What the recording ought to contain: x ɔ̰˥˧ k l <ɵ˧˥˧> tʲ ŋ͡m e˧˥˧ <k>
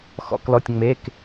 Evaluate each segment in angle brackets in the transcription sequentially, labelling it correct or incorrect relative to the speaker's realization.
incorrect: ɔ˧˥˧, correct

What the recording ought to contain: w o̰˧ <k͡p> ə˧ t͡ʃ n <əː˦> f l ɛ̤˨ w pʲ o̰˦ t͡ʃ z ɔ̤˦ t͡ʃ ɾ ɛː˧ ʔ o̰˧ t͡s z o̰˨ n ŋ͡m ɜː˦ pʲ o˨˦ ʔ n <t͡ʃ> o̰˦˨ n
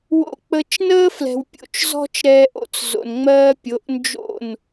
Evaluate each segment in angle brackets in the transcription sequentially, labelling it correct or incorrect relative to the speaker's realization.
correct, correct, incorrect: d͡ʒ

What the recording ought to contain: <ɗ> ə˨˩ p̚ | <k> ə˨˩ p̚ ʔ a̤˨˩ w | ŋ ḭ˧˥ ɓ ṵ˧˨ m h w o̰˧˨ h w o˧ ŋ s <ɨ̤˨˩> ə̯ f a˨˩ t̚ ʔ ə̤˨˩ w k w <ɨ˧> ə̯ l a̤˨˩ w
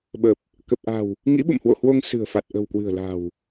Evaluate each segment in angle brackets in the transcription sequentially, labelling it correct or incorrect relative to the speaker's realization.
incorrect: ɓ, correct, correct, incorrect: ɨ̤˨˩

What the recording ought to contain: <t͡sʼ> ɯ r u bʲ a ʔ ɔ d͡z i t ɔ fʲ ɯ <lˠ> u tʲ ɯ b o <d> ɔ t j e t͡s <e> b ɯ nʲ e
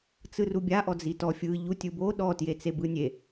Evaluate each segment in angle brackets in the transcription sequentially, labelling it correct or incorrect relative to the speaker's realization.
incorrect: t͡s, incorrect: ʎ, incorrect: ɗ, correct

